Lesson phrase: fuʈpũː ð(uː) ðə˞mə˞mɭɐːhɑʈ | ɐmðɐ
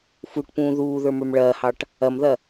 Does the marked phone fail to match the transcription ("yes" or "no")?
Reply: no